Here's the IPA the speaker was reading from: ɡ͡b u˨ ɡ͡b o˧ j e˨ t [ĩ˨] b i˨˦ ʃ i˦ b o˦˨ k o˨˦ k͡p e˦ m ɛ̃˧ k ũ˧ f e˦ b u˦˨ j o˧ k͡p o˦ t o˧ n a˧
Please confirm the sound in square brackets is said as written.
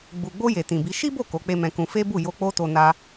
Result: yes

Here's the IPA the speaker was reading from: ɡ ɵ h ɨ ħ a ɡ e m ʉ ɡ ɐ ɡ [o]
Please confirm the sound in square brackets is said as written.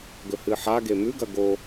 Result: yes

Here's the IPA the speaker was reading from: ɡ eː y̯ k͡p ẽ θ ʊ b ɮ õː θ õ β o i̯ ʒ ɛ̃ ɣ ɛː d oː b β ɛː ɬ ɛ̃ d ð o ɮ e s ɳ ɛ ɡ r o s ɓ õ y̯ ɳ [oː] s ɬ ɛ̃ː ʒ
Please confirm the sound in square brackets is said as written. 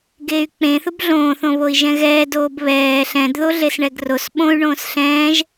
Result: no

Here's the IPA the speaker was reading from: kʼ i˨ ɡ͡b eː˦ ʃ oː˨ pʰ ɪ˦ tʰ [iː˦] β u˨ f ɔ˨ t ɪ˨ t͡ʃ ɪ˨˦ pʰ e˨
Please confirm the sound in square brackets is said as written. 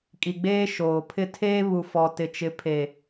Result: no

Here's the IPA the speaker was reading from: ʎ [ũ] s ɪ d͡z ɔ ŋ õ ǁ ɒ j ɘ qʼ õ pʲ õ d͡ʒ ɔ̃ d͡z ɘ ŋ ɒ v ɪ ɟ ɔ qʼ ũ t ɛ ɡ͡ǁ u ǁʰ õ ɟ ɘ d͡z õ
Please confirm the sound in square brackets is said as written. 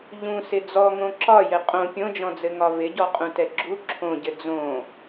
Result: yes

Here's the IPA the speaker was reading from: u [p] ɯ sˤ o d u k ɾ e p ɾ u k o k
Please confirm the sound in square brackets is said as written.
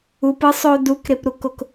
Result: yes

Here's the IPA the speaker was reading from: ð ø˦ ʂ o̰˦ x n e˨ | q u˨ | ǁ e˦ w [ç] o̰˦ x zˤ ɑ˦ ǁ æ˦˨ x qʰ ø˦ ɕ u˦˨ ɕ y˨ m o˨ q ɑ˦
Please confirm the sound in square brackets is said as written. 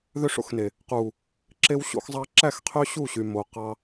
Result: no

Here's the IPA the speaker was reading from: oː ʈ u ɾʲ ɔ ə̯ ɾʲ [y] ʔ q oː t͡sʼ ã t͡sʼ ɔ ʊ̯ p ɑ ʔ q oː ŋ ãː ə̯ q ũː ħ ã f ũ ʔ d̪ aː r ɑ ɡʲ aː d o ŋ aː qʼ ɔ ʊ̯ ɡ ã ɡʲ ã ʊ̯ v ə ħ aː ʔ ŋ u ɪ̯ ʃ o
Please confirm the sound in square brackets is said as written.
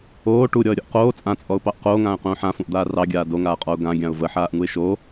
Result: no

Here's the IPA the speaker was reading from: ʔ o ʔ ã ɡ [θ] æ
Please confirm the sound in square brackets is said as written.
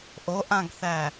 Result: yes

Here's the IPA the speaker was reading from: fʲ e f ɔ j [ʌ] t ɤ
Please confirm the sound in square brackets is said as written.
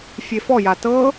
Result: no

